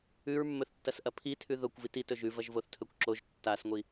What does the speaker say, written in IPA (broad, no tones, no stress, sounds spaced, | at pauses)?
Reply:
ʉ ɹ mː ɵ θ tː ɐ s ʔ ɐ pʰ i tʰ ʉ ð o kʷ v i t i t ɵ ʒ ʉ v ɐ ʒ v o θ tʰ ɵ kʷ ǁ o ʒ tː a s ŋʷ i